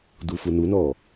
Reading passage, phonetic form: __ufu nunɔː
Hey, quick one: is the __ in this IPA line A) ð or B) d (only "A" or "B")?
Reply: B